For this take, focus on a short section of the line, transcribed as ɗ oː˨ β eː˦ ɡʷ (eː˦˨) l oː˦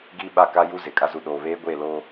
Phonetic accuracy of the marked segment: correct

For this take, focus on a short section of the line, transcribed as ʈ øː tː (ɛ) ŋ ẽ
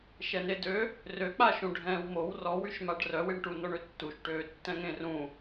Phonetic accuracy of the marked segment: incorrect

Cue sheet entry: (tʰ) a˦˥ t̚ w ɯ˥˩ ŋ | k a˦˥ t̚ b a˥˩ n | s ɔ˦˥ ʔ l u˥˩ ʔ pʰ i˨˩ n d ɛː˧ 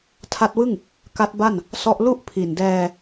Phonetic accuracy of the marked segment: correct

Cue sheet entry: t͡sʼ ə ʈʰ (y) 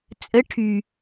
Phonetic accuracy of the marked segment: correct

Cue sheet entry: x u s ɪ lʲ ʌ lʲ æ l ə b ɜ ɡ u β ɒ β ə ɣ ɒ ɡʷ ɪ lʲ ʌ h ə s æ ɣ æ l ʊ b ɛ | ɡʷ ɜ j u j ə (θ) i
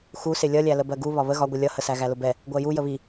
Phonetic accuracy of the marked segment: incorrect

